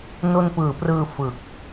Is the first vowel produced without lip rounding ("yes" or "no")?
no